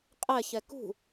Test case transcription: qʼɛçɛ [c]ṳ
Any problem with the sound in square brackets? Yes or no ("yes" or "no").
yes